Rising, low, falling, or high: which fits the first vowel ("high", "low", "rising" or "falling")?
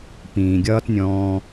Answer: low